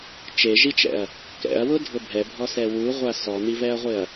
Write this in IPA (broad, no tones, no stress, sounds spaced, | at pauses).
t͡ʃ e ʒ i t͡ʃ ɛ̰ ɐ̯ | k ɛ̰ ɐ̯ w ʊ dʱ ʊ bʱ ɛ bʱ ɔ s ɛ w u ʁʷ a s ɔ n̪ i v ɛ ɐ̯ ʁʷ ɪ ɐ̯